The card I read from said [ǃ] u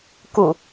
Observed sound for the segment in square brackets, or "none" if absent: k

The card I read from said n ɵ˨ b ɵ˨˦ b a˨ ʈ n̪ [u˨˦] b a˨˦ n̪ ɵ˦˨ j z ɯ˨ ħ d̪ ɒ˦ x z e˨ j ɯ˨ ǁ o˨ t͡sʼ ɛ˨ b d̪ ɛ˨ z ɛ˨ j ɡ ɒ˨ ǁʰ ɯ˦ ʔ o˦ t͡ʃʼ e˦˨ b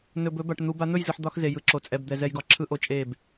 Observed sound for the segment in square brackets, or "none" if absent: u˨˦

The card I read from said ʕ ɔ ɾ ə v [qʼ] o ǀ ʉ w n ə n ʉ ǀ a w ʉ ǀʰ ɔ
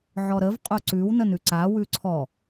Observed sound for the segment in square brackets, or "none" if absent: qʼ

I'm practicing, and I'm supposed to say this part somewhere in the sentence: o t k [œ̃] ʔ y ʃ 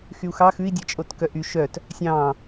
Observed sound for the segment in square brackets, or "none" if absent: œ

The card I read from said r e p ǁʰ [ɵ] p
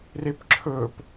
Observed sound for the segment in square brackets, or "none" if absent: ɵ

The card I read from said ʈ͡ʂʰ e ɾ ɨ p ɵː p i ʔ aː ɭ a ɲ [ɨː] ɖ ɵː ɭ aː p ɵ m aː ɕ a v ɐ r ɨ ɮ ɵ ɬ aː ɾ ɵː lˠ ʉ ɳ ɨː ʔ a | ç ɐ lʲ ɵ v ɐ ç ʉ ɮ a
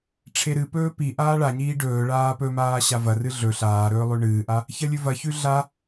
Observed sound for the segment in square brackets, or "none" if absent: iː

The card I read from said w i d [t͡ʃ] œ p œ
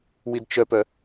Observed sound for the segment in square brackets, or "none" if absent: t͡ʃ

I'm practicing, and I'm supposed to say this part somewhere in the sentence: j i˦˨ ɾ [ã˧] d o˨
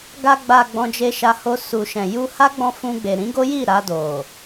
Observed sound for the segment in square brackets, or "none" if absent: a˧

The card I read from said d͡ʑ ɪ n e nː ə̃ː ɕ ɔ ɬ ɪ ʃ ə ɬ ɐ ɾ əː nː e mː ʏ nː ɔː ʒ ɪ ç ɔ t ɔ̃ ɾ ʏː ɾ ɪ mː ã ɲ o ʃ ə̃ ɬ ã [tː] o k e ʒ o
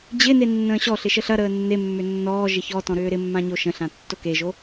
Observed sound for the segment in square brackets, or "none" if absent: tː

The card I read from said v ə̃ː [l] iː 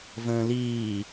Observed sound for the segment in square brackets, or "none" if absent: l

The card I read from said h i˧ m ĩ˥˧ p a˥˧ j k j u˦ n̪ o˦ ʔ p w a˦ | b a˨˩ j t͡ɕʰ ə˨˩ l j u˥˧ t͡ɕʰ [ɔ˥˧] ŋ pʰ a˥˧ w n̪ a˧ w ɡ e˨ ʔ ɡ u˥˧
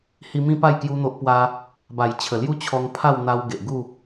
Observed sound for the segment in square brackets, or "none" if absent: ɔ˧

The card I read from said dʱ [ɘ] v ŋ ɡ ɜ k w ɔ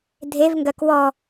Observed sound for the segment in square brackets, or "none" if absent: e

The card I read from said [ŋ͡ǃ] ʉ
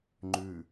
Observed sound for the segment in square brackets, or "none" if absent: ŋ͡ǃ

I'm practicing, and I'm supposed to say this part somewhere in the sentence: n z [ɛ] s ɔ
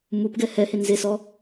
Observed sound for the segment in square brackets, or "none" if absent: e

